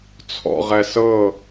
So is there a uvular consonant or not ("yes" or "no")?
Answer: yes